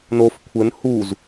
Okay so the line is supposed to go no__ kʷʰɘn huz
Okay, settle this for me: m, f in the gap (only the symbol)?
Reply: f